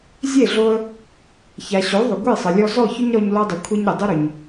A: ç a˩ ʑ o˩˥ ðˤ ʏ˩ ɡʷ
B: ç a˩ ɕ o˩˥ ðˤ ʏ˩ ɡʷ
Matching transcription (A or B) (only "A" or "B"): B